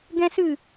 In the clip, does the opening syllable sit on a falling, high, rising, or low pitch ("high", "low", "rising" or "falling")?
high